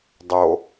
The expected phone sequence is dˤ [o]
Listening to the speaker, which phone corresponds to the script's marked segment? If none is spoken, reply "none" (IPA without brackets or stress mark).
o